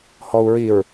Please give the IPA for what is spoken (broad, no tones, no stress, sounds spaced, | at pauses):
h ɔ u̯ ɹ i ɹ